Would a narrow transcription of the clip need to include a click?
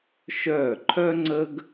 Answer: yes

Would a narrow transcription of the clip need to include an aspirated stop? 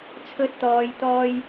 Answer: yes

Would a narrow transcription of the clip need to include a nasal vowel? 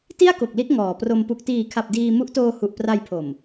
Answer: no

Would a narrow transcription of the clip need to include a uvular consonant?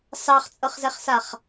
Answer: yes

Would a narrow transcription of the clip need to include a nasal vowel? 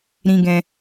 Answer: yes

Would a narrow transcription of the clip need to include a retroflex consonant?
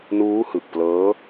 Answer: no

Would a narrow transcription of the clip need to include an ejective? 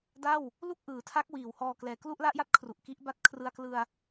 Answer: no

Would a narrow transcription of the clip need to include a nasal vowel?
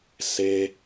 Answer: no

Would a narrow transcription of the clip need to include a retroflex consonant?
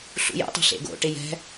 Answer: yes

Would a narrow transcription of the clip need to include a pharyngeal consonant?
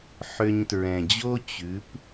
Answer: yes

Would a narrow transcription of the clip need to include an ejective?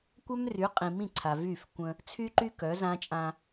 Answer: yes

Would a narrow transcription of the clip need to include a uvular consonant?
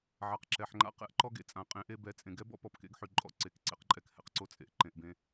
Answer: yes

